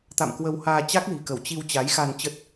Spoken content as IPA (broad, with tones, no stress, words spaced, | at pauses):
t̪a̰˧˨mkwə˧whaː˧ t͡ɕa˦˥k̚li̤˨˩kə˧˩w t͡ɕi˧w t͡ɕa˨˦jxa˧n t͡ɕə˦˥t̚